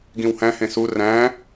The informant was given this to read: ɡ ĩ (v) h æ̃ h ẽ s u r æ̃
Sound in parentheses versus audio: incorrect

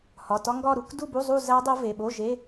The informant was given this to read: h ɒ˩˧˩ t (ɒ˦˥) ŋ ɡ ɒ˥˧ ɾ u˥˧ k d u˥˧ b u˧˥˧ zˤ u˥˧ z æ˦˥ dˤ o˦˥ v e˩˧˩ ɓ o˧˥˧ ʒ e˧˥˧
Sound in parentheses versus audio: correct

